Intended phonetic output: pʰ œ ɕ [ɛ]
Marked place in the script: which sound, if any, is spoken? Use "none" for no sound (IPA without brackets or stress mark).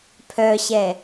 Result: ɛ